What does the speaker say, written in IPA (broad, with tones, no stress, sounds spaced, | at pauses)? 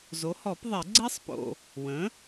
z o˩˥ h ɔ˨˩˦ p ðˤ ɛ˨˩˦ ɡ͡ǀ ɛ˦˥ sˤ p o̰˨ | w ə̃˩˥